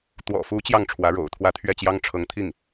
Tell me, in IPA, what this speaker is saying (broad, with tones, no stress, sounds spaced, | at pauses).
t̪ w ɔ̰˨˩ f u˧˥ t͡ɕ j ɑ˥˩ ŋ ʈ͡ʂʰ w ä˧˥ ɻ o̰˨˩ ʊ̯ t̪ʰ w ä˧˥ t̪ʰ ɥ ɛ˥˩ t͡ɕ j ɑ˥ ŋ ʈ͡ʂʰ ɤ˧˥ ŋ t̪ʰ i˥˩ ŋ